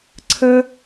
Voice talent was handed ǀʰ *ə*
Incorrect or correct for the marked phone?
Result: correct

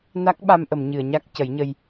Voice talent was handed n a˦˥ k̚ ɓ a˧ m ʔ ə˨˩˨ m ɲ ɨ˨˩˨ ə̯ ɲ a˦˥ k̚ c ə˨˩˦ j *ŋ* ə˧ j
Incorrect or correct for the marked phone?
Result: incorrect: ɲ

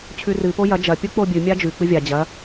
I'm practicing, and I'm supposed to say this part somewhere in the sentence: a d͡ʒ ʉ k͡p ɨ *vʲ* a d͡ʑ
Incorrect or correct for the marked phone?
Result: correct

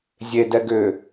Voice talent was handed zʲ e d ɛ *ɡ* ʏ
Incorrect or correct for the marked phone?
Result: correct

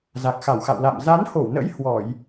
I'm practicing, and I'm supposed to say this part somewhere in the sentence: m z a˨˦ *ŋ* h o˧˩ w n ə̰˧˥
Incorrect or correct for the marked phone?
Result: incorrect: n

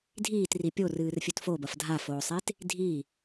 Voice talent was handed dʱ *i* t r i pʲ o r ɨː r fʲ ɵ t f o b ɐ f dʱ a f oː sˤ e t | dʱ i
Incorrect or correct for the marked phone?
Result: incorrect: iː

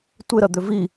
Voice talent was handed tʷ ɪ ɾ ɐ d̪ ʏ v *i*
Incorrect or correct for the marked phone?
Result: correct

